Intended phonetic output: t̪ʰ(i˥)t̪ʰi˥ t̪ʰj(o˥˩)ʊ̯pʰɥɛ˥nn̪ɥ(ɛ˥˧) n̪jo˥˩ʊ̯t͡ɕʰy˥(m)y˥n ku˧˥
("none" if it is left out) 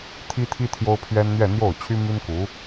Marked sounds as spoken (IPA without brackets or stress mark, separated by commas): i˥, o˥, ɛ˥˧, m